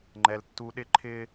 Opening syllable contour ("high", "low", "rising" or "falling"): low